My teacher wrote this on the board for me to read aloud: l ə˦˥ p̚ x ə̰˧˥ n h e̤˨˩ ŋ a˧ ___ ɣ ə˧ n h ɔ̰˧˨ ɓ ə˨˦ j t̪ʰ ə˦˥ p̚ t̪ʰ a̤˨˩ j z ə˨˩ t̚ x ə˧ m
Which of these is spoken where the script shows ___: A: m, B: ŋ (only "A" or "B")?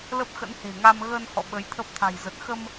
A